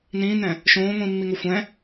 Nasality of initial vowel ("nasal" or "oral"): nasal